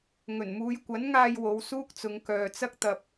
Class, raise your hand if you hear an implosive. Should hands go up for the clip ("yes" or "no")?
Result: no